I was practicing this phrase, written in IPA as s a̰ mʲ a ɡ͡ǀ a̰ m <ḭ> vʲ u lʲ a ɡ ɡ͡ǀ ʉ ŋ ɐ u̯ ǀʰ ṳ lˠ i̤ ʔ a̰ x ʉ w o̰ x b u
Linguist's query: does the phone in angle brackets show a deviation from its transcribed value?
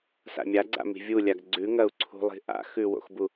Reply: yes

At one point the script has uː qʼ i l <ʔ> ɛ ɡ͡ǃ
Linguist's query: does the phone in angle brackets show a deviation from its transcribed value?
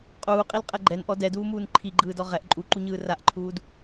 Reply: yes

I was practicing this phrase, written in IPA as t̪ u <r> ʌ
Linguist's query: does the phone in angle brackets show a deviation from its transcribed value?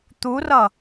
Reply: no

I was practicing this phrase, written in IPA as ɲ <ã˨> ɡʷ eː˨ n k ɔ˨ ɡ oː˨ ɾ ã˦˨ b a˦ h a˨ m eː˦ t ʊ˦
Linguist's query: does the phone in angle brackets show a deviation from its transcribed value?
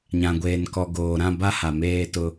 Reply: no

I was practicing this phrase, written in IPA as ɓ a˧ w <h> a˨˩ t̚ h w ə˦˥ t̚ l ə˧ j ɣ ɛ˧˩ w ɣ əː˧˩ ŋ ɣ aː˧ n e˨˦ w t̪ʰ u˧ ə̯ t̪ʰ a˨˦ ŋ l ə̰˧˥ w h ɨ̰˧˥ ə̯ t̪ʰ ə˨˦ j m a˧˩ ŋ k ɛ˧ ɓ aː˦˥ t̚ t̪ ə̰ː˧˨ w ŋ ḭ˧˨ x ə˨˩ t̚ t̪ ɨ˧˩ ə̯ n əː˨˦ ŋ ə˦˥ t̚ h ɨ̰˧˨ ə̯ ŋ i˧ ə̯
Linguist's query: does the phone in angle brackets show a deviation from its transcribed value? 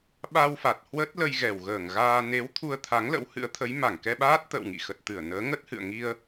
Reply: yes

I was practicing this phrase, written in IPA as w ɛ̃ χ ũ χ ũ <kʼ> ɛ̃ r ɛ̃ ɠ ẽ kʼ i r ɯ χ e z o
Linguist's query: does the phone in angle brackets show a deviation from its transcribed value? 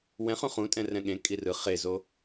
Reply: yes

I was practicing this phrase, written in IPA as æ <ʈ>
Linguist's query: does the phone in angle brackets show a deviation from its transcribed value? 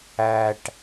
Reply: no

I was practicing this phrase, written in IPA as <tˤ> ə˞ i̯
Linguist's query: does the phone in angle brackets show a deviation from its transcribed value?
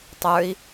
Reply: no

